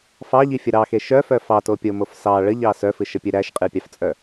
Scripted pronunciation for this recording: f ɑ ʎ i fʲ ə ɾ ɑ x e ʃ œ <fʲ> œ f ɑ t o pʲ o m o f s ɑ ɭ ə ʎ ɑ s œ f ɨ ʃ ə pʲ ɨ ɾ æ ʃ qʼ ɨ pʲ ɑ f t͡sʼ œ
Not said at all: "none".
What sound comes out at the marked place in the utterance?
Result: f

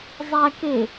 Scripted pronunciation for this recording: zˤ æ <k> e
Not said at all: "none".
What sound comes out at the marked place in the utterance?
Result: k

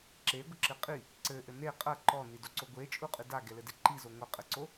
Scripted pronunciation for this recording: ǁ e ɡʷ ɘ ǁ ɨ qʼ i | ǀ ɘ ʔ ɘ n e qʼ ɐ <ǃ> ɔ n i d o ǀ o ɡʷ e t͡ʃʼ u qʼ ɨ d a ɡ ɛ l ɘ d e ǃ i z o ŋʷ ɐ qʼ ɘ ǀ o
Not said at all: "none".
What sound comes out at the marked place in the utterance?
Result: ǃ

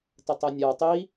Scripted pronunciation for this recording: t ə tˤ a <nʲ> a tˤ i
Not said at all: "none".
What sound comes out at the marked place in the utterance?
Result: nʲ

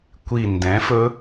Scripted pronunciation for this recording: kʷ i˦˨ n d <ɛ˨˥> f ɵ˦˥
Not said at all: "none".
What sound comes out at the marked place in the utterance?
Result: ɛ̃˨˥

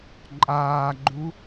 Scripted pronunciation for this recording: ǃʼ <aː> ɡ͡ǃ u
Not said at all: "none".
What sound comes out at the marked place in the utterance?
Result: aː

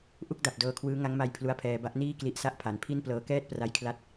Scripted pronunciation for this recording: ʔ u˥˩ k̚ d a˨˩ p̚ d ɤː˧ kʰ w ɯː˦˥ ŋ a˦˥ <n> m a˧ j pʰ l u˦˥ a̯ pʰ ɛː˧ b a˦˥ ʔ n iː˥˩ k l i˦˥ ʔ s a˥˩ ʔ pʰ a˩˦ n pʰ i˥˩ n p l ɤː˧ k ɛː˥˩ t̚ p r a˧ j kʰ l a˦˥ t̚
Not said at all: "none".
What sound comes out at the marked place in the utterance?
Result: ŋ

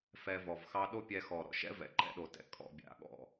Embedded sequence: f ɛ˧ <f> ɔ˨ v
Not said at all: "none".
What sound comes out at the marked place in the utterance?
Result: v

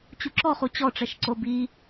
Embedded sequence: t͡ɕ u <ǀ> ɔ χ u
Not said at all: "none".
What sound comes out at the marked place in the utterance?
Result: ǁ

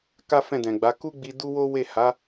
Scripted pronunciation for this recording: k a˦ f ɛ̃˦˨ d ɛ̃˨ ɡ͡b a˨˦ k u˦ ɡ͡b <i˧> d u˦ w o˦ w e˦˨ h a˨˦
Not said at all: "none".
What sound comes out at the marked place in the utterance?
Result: i˧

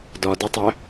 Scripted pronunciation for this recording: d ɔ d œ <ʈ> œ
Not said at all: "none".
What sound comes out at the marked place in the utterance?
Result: tˤ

